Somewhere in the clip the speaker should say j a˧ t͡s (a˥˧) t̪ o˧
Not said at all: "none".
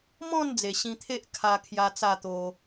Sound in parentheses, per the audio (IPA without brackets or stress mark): a˥˧